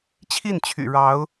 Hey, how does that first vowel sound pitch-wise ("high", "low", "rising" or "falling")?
falling